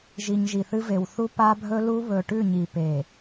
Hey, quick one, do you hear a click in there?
no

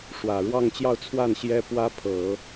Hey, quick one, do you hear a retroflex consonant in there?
yes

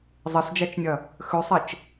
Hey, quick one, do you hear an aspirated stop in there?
no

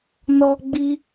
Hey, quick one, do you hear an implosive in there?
no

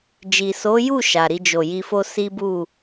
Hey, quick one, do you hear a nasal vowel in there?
no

